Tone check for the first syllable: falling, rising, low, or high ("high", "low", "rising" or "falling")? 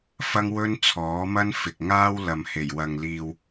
high